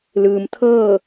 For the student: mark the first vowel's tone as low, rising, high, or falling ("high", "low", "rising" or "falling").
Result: low